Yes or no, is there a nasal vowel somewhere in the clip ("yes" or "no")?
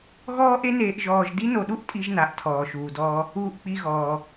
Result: no